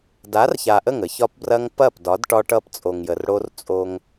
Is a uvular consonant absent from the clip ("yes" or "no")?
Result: yes